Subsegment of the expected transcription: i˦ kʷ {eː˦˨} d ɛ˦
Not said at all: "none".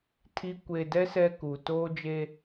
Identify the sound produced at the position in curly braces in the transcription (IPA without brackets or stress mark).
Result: eː˨